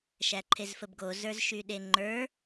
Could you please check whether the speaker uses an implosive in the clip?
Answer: yes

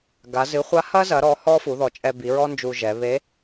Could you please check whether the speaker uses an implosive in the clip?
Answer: no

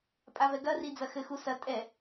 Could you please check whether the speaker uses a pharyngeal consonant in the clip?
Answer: no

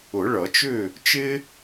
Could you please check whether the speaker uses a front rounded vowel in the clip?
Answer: yes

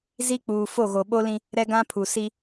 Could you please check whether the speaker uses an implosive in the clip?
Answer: yes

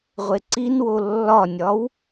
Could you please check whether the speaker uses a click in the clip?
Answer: yes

